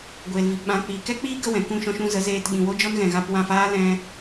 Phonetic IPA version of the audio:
ɡʷ eː˨ l v i˨ p ɓ ã˨˦ k͡p iː˨ k ɛ˦ k͡p iː˦ ɡ ə˦ w ɛ̃˨ k ũ˦˨ ʃ ɔ̃˧ ʃ ũ˧ z ə˨˦ z eː˧ t ɓ ĩ˨ w o˦ d͡ʒ ɔ˦ n ɣ ɛ̃˨ ɣ a˧ p w ã˦˨ f aː˦ l ɛ̃˦

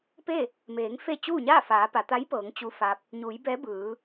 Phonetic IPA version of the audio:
p e˥˨ | m eː˩˧ ŋ f e˥˨ t͡ɕ uː˥˨ ɲ aː˥˨ f aː˩˧ p a˩˧ t̪ a˧˥ j p ɤː˩˧ ŋ t͡ɕ u˧ f a˧ p̚ | ɲ uː˩˧ j b ɛː˧˥ b ɯː˩˧

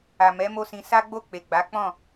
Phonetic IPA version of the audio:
a˨ m ɛ˨˦ m o˦ s ĩ˧ s a˦ ɡ͡b o˦˨ k͡p e˨ ɡ͡b a˨˦ k͡p ɔ̃˦˨

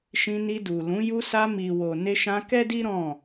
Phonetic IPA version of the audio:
ʃ ĩ˧ n i˧ d u˨ l ũ˨˦ j u˧ s a˧ m i˨ w o˨ n e˧ ʃ ã˧ k ɛ˦ d i˦ ɾ ɔ̃˦˨

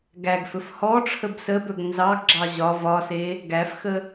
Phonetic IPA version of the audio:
ɡ æ ɡ f ɵ f h ɔ ʈ͡ʂʰ ə b s ə b ɵ ɡ n z ɑ ɡ ɡ͡ǁ ɑ ʑ ɒ v ɒ s e | ɡ æ f x ə

